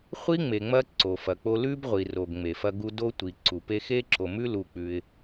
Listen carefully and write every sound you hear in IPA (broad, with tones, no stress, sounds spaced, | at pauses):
χʷ i˦ ŋ͡m e˨ ŋ͡m ɐ˦ ǀ o˨ f ɐ˨ k͡p o˦ l ʉ˦ b ʁʷ i˨ r o˨ ɡ ŋ͡m e˨ f ɐ˦ ɡ u˦ d o˦ tʷ i˨ ǀ u˨ p e˦ x e˦ ǁ o˨ m ʉ˦ l u˨ k͡p ʉ˦ ɪ̯